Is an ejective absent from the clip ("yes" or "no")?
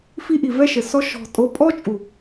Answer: no